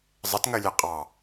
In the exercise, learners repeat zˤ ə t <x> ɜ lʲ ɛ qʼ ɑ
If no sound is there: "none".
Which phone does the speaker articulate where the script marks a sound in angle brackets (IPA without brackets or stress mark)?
ŋ